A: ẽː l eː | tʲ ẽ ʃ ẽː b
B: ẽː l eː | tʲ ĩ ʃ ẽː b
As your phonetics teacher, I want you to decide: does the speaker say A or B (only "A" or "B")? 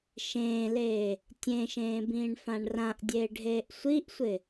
A